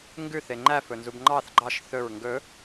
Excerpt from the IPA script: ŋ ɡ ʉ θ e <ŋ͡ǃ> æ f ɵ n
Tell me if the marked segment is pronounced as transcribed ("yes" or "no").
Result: yes